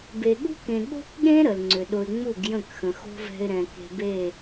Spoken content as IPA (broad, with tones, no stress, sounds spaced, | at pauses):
b e˨ ɠ ṳ˦ k ẽ˨ ɠ o̤˦ k ɠ ẽ˦ ɾ ə˨ l ŋ͡ǀ ʏ˨ ɗ ʊ˧ ɪ̯ ŋ͡m u˦˨ ɡ j ə̃˦˨ k x ə̃˨ x o̤˦ v ɛ̤˧ ɪ̯ ɾ ɛ̃˨ k e̤˧ b e˦˨